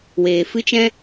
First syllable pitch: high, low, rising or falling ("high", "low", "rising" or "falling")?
low